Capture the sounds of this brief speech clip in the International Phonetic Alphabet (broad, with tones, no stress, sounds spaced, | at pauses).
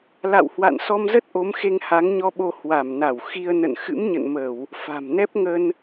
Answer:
l a̰˧˨ w h w a̰˧˨ n s ɔ˧ m z ə˦˥ t̚ ʔ o˨˦ m x e˧ ŋ h a˨˦ ŋ ɲ ɔ˧ ɓ o˧ h w a˧˩ m n a˧˩ w x i˧ ə̯ n ə̰˧˨ n x ɨ̰˧˥ m ɲ ə̰˧˨ n m ə˧˩˨ w | f a̤˨˩ m n ɛ˦˥ p̚ ŋ ə˧ n